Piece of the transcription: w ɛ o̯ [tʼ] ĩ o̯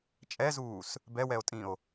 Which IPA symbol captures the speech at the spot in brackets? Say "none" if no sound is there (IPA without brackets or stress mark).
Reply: tʼ